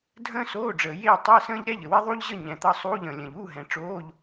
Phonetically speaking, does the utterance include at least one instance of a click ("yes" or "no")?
no